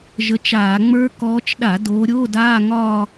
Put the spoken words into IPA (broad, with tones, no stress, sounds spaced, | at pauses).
ʒ ə˨˦ t͡ʃ aː˧˩˧ ŋ͡m ə˞˦˥ k ɔː˨˦ t͡ʃ ɗ a˧˩˧ d oː˨˦ ɾʲ oː˧˥˧ d aː˧˥˧ ŋ ɒː˥˧